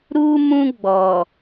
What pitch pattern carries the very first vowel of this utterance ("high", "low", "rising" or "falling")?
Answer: high